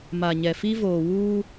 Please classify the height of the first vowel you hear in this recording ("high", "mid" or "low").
low